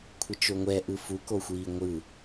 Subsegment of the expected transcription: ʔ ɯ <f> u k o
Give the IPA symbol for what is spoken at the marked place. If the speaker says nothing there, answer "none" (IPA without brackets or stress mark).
f